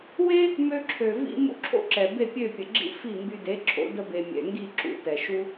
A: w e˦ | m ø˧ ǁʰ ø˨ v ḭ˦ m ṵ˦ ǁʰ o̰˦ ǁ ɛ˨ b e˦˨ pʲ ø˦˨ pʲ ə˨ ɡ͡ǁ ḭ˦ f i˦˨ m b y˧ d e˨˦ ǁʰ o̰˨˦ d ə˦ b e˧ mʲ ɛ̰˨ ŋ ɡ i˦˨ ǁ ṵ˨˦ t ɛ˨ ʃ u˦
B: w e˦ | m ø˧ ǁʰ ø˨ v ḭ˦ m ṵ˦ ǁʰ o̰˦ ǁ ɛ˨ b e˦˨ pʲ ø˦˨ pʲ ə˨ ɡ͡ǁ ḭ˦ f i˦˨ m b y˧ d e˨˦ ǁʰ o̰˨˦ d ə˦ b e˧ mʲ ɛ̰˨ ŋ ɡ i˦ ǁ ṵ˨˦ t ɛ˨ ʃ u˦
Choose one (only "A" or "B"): A